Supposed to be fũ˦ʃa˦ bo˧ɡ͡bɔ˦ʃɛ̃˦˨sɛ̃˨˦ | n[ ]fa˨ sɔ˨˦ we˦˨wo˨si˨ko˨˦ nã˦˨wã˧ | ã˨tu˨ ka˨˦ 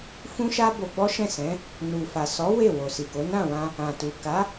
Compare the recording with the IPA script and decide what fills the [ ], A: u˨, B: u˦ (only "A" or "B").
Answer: A